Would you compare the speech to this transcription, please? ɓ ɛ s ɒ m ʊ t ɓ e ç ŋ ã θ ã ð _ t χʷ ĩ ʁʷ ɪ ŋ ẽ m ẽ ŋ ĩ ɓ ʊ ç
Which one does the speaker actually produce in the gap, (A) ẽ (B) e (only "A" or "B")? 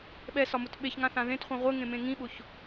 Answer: A